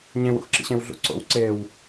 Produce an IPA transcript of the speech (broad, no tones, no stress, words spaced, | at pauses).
ɲẽw ṵxǁḭɕẽwɮṵ ǀo̰wǀew